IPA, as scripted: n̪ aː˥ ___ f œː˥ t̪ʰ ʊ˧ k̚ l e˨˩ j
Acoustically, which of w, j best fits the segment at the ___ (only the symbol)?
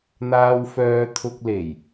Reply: w